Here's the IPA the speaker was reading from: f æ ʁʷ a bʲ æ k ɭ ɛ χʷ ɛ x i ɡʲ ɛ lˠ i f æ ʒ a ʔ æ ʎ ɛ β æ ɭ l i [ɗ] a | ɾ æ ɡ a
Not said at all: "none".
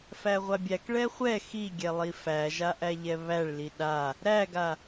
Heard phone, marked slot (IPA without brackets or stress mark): ɗ